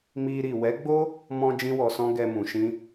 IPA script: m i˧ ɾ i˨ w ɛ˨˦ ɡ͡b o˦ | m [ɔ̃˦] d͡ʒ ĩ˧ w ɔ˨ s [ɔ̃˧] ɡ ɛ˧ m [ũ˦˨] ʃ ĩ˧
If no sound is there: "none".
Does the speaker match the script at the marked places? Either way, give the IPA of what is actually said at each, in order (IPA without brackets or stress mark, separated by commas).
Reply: ɔ̃˧, ɔ̃˧, ũ˨